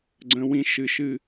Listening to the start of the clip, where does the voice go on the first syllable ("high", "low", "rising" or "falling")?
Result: high